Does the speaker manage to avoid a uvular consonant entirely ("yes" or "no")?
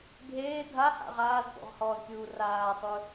no